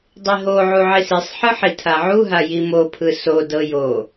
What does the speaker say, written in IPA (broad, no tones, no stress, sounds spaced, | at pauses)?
dˤ i ɦ o ʕ u ʕ i s i sˤ ħ ɯ ħ i tʰ a ʕ u ɦ a j i m o pʰ ɯ s o d ɤ j o